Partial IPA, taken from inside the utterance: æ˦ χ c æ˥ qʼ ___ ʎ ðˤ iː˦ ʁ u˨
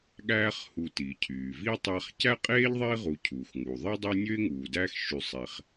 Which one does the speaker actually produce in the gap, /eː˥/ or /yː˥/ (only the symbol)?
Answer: eː˥